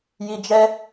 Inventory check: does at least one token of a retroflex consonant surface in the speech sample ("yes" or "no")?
no